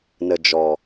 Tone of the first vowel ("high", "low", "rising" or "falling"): low